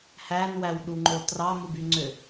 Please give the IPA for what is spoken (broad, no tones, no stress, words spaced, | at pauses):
hænwæw ɗuŋ͡ǃo trɑmubyŋ͡ǀø